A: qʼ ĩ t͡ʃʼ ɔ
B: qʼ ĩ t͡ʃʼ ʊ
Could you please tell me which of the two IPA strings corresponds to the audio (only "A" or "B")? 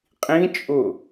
B